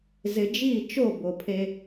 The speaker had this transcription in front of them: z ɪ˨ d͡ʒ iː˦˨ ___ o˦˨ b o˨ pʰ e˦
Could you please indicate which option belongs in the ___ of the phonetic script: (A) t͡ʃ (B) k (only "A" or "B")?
A